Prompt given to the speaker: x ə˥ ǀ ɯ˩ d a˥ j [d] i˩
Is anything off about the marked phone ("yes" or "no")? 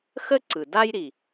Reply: yes